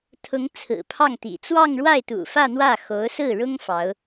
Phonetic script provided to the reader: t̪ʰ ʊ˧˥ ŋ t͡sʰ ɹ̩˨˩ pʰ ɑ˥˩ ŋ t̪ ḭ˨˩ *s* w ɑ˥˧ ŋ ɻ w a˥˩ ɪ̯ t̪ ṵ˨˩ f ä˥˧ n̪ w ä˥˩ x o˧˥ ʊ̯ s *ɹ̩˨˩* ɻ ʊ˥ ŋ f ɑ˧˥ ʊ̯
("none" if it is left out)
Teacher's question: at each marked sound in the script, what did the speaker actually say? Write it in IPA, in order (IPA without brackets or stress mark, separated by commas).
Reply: t͡s, ɹ̩˥˩